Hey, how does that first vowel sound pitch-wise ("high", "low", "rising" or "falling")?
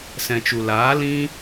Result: low